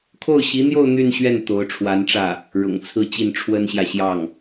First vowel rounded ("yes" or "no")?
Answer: yes